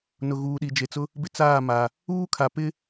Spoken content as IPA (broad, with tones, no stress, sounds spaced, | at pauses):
n ʊ˨ ɣ uː˨ ɗ i˨ d͡ʒ e˨ t͡s ʊ˦ | b ɪ˦ t͡s aː˦˨ m a˨ | uː˦ kʰ a˨ p ɪ˦